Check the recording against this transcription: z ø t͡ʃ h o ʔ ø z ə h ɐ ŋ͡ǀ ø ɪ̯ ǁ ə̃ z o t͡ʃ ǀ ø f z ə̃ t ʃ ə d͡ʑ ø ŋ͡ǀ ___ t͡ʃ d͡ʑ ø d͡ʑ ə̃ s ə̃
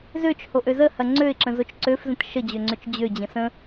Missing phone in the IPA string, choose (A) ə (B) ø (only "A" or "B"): B